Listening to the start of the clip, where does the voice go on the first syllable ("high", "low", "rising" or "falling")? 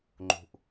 low